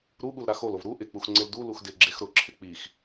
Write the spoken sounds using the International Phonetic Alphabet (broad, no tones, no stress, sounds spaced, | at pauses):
ɾ u ɠ u l ɾ a x o l o v ɾ u ʔ ɪ k͡p u x ŋ͡ǀ ɪ l d u l u x d ɪ ɡ͡ǁ e x ɾ ʊ ǁʰ ɪ k͡p i x